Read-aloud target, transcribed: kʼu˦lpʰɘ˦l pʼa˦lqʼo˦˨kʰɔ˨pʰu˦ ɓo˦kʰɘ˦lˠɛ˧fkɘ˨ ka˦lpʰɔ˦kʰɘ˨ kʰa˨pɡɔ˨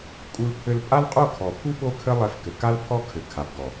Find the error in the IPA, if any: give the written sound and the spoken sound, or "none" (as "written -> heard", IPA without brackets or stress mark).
none